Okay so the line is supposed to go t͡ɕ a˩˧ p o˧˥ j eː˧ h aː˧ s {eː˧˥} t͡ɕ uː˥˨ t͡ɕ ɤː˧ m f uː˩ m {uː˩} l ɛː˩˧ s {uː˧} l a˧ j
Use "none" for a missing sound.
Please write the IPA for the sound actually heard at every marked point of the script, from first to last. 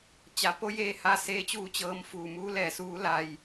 eː˧˥, uː˧˥, uː˧˥

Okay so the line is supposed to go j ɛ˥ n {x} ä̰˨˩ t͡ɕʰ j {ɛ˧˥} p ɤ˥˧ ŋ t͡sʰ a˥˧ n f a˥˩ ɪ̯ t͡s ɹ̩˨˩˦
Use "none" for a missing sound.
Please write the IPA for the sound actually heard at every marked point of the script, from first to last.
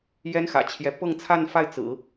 x, ɛ˧˥

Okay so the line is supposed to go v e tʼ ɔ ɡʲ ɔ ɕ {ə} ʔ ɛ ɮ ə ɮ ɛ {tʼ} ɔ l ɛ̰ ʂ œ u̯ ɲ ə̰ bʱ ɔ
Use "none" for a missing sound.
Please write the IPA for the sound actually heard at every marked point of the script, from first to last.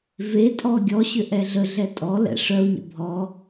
ʏ, tʼ

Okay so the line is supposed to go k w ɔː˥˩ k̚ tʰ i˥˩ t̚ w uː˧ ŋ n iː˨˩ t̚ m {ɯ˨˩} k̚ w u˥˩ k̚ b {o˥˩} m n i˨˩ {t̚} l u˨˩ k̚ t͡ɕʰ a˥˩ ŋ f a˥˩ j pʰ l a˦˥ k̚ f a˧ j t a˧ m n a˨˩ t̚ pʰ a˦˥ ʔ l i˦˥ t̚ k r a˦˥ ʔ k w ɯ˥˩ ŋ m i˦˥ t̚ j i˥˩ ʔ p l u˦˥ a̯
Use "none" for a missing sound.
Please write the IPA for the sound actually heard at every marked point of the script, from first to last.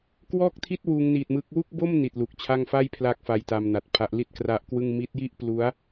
ɯ˦˥, o˥˩, t̚

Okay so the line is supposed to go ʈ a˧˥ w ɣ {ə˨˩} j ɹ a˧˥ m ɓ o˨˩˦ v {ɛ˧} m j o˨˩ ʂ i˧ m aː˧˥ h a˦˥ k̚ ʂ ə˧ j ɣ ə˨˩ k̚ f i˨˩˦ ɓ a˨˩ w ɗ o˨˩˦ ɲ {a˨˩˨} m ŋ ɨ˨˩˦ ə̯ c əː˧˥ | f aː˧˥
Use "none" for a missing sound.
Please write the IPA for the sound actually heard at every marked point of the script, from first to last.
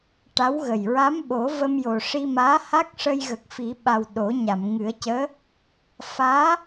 ə˨˩, ə˧, a˨˩˨

